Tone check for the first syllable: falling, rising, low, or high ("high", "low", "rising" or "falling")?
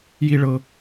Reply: high